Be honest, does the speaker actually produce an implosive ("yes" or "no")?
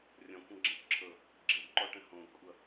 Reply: no